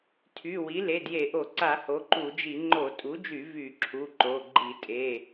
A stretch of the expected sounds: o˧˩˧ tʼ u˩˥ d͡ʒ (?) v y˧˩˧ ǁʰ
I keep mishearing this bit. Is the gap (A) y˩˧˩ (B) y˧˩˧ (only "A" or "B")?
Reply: B